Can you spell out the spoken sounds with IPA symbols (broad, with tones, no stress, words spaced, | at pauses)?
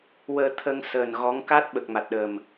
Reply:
wəː˧t̪ʰə˧ŋsəː˨˩n ɣɔ˧˥ŋ ka˦˥t̚ɓə˨˩k̚ma˨˩t̚ɗə˨˩m